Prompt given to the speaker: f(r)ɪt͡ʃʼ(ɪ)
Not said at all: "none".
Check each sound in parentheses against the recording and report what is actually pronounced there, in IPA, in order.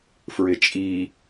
ɹ, i

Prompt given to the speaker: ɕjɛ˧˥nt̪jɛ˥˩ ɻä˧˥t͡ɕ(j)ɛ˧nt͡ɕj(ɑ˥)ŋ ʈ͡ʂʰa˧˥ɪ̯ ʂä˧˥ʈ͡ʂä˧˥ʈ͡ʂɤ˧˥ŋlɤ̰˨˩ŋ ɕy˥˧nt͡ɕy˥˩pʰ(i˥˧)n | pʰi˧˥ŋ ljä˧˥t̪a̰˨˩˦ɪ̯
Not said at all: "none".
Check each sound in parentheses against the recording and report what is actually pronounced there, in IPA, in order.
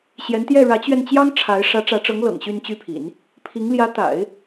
ɥ, ɑ˥, ḭ˨˩˦

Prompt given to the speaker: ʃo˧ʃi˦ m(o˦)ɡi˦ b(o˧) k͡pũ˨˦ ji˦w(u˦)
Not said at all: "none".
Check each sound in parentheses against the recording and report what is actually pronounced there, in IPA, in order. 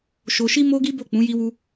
o˦, o˦˨, u˦

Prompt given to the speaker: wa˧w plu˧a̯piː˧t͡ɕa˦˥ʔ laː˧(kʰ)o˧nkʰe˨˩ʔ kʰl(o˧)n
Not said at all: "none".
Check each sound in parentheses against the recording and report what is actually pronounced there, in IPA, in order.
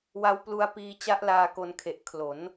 k, o˩˦

